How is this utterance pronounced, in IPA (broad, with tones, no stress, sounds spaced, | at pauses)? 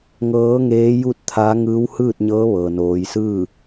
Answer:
ŋ ɤː˧˥ ŋ eː˧˥ j u˥˨ t̚ t̪ʰ a˧˥ ŋ ɯː˧˥ w h ɯː˥˨ t̚ ɲ ɤː˧˥ ʋ ɤː˩ n oː˩˧ j s ɯː˥˨